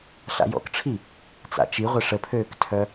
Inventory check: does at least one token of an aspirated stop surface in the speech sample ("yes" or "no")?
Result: yes